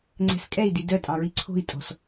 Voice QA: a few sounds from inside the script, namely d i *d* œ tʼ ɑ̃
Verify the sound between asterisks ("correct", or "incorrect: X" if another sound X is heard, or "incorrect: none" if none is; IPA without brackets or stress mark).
correct